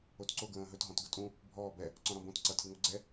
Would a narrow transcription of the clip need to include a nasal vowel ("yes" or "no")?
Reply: yes